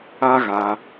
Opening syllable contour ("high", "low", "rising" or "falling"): high